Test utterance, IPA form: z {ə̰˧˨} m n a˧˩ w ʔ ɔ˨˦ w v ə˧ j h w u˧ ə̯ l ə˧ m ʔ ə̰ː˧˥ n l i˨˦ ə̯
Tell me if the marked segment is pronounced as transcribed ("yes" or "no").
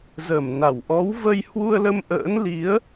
no